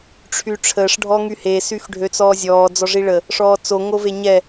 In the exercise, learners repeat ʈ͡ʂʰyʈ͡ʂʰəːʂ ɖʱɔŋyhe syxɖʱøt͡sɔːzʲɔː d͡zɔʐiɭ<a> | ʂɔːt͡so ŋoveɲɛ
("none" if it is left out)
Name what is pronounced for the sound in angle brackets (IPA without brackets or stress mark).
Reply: ə